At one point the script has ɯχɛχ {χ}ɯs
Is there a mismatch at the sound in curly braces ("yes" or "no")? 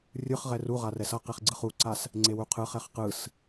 yes